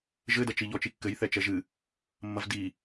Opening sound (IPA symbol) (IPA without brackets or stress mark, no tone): ʒ